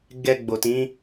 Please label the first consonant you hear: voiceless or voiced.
voiced